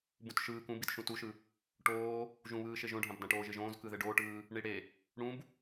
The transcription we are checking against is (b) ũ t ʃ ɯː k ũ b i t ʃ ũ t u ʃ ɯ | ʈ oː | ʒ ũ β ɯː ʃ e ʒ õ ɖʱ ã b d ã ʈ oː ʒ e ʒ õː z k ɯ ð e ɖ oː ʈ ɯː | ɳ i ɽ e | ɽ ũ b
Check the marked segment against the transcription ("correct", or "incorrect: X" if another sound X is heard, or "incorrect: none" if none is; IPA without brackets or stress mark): correct